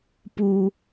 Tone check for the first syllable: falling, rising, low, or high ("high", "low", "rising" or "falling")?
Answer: low